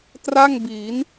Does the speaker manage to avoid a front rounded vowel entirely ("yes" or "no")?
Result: yes